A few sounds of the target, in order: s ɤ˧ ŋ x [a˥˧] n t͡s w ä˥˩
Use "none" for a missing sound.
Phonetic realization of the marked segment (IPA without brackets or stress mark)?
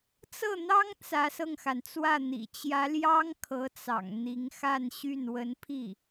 a˩